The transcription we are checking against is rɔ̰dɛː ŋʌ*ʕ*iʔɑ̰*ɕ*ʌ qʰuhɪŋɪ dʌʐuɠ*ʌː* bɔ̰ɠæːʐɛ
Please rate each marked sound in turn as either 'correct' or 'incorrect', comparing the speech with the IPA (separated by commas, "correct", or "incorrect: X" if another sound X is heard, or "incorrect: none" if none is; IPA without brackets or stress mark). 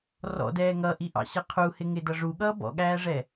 incorrect: ʔ, correct, correct